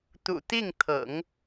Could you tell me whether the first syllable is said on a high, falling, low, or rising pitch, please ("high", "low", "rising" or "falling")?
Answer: low